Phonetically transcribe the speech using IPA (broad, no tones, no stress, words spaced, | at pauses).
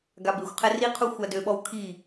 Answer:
ɡabexʷqʰɛ riqʰu xʷadøɓɔw kʰi